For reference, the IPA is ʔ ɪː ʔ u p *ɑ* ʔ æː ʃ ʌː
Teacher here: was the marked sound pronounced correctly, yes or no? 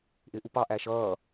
yes